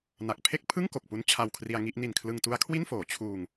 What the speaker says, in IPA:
na˨˩k̚ pʰe˥˩k̚pʰɯ˥˩ŋ ko˨˩k̚pu˦˥n t͡ɕʰa˧wkʰri˧a̯ŋi˥˩ʔ ni˨˩nkʰlɯ˧ŋtu˦˥a̯ kʰwi˥˩nfoː˩˦ t͡ɕʰuː˧ŋ

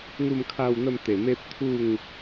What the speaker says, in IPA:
ŋu˥˧mkʰa˥˧wn̪ə˥˧m t̪e˨˩me˦p̚t̪ʰu˥˧ŋ

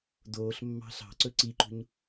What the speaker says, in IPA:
doːɬmːɑ̤ ɬɑ̤ǀɵ ǀiǃṳɲ

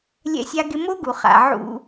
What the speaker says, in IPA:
lʲɛ̰˦sʲa˦ɡɪ˦ mo˦ɡu˨χa̰˨ ʕṵ˦

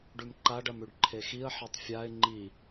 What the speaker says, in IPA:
ɖʉmǃaɖ ɐmʉɖǃʰexiə̯ ħetˤfʲaɪ̯ ŋ͡ǃi

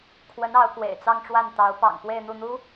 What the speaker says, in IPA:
kʰwə˧˥n ɑ˧˥ʊ̯kwḛ˨˩ɪ̯t͡sɑ˥˧ŋʈ͡ʂwa˥˩n t̪ɑ˧˥ʊ̯pɑ̰˨˩ŋ pwe˥˧ɪ̯n̪u˥˩n̪u˥

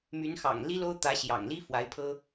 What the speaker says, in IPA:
my˧˥nxɑ̰˨˩ŋ li˥lo˥ʊ̯ t̪ä˧˥ɕjɑ̰˨˩ŋli˥ fwa˧˥ɪ̯pʰɤ˥

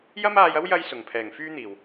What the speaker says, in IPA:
jɐ˥maː˧jɐ˥w jɐ˥jsʊ˨˩ŋ pʰɛː˨˩ŋfyː˥n̪iː˨˩w

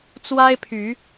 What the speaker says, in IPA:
t͡swa˦ɪ̯pʰy˨˦

